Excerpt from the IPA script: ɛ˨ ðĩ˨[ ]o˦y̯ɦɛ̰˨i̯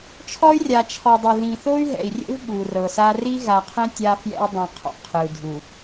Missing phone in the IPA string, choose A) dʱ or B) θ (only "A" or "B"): B